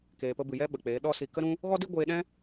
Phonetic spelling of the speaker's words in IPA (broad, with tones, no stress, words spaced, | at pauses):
keː˨pə˧bɨ˨jɛ˦ ɓə˨k͡peː˨˦ɗɔ˦ si˨kə˧ɾũ˧ | ɣɔ˦di˦ɡʷeː˧ɗɛ̃˦